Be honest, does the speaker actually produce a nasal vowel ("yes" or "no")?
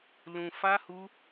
yes